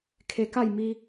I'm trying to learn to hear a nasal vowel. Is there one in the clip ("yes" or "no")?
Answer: no